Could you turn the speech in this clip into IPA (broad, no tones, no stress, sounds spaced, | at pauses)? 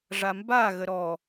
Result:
ʐ a m b a ɣ ə ɾ ɔ